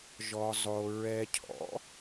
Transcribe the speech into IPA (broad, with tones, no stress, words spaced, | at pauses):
ʒɔ˧zˤo˧ ɹɛ˧cʰɔ̰˨˥